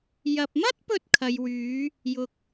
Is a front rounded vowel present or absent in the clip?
present